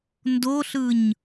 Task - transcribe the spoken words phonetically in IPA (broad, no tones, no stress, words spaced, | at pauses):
ndoɬɯɲ